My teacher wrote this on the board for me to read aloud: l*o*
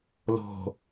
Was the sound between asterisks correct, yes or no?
no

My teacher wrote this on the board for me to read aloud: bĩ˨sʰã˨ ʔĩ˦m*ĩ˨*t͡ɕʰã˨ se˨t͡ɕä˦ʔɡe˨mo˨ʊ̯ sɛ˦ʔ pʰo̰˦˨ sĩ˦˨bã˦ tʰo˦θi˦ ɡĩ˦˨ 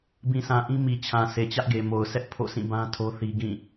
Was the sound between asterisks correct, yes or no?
no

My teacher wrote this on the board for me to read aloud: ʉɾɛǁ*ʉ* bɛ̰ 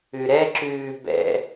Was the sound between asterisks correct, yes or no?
no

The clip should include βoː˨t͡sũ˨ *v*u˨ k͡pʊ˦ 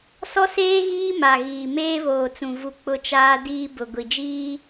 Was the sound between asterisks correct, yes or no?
yes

